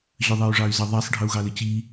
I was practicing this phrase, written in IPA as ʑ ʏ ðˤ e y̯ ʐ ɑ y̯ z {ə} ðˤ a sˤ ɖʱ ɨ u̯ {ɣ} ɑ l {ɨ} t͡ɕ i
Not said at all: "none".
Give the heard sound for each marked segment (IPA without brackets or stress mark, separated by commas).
ə, ɣ, ɨ